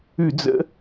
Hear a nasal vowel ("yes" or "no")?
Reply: no